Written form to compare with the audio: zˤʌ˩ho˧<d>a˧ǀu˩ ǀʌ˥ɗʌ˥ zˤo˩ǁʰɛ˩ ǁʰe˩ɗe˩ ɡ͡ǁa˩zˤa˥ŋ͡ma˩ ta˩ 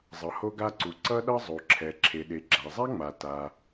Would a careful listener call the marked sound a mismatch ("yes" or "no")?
yes